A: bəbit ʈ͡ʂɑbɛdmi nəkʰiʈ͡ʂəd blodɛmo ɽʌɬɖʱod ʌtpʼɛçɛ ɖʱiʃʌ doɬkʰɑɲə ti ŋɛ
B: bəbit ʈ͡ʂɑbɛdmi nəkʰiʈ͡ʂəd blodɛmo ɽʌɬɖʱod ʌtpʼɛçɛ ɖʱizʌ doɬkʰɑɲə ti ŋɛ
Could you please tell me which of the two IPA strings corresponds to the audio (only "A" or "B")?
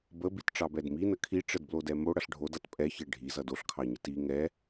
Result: B